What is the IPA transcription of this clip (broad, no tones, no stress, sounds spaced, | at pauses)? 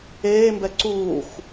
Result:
eː m b ɛ ǀ uː x